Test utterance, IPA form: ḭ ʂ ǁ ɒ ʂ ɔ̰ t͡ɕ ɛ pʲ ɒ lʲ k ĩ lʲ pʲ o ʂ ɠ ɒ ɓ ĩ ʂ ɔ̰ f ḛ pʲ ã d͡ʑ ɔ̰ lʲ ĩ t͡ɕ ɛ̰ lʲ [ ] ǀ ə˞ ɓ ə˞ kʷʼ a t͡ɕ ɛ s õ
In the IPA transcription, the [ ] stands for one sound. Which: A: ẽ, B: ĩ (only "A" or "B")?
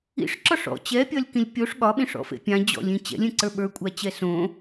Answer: A